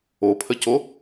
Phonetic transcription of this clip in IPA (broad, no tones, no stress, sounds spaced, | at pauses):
o pʰ ə c o